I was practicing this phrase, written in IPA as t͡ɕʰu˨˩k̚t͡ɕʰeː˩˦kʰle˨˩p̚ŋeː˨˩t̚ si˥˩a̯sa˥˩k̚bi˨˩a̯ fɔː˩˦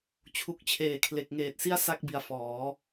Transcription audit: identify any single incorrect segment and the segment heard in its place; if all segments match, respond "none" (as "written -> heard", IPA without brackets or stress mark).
p̚ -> k̚